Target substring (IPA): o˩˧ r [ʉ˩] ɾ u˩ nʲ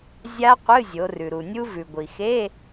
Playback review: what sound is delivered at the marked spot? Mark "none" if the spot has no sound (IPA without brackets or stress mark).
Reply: ʉ˩